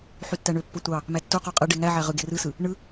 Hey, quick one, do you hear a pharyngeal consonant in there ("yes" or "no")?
yes